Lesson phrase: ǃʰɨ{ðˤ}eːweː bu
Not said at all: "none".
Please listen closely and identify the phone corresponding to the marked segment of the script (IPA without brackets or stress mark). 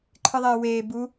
ðˤ